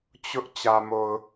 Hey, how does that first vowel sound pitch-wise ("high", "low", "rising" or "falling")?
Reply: high